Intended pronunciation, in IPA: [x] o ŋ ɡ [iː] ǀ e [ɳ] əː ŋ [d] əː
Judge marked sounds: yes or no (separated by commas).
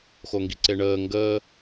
yes, no, yes, no